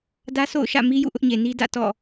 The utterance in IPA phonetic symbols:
dä˦so̰˦˨ʊ̯ ʃä̰˦˨mi˦jṵ˦˨ ʔʊ˦ʔɲe˨ni˦ dä̰˦˨ tɔ̰˦˨

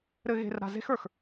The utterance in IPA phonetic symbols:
ɾɘ˧ɣe̤˧r ɾa̤˧ze̤˦xə˞˨x

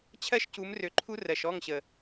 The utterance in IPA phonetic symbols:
t͡ɕʰɜ˦ʃcu˨˦m rø˧ǃʰu˦ rɜ˨ʃɔ˦˨ŋɕə˨

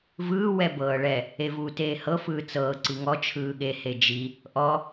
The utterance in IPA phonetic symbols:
vɯː wɛbɤːɭɛ | evuːteːhɤ fɯːt͡sɤː ǀiŋɔ t͡ʃʰɯːɠe hed͡ʒi | ʔɔ

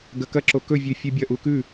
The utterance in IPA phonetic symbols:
ɡɐkɐǁo kɵvʲʉ fʲʉbʲɐʔu kʉ

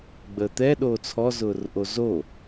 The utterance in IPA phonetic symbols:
ɡ͡bəːt̪ɛ ɗoːt͡sʰɔ zʊːrʔozo

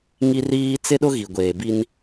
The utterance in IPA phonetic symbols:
ŋi˦riː˦ t͡sɪ˦ɗʊ˦ɣi˨ ɡʷeː˨bi˦n

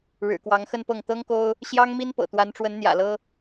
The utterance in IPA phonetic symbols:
ɻɻ̩˨˩kwɑ˧˥ŋxə˥˧npɤ˥˩ŋ t̪ɤ˥ŋko˥ʊ̯ | ɕjɑ˥ŋmi˥npɤ̰˨˩ t̪wa˧˥nʈ͡ʂwə˧˥nn̪jä̰˨˩lɤ˥

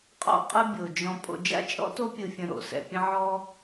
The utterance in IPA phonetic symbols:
qʼɔ̰˦qʼɯ˦ bʲo˩d͡ʒɔ̃˨ pʼo̰˨d͡ʒa̰˥t͡ʃʼɔ̰˥to˦ pʲɯ˨fʲə̃˨ ɾo̰˩sɛ̰˨pʲə̃˦ ʕɔ˦

